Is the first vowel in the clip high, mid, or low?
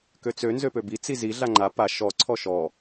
mid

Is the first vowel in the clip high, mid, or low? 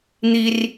high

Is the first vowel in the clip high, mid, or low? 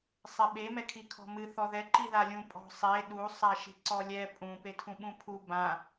mid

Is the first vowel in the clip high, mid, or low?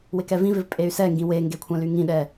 high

